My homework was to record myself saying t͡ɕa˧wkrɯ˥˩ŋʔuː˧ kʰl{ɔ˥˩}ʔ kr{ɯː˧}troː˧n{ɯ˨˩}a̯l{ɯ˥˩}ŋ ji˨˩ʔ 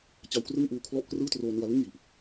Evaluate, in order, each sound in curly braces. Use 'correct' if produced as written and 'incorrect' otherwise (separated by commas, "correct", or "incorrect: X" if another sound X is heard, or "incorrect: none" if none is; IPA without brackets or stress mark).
correct, incorrect: ɯː˥˩, incorrect: ɯ˧, correct